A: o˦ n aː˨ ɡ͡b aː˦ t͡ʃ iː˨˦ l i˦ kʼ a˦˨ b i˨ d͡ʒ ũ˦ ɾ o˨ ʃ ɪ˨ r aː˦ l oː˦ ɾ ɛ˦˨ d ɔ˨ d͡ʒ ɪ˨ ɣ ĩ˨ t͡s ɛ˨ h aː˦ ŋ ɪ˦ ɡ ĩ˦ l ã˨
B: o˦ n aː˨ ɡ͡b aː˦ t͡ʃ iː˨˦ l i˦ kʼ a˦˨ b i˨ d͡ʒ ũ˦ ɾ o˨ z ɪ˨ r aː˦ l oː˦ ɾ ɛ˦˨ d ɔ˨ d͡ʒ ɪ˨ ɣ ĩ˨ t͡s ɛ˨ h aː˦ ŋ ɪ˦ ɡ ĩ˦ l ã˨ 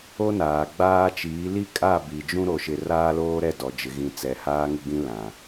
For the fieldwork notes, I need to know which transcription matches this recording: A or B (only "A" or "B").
A